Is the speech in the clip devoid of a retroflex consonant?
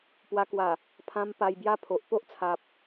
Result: yes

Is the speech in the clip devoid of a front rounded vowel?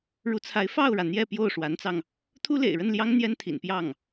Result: yes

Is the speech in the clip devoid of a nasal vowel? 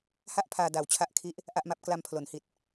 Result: yes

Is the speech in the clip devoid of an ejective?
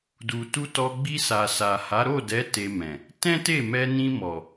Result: yes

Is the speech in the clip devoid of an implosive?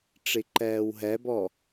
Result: yes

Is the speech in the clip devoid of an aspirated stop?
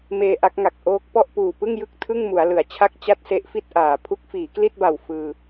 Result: no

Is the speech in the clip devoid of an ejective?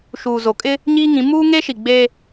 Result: no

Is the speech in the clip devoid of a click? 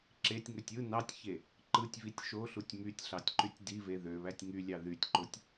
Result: no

